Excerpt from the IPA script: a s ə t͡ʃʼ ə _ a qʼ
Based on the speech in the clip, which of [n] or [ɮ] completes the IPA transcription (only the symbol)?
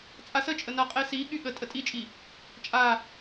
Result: n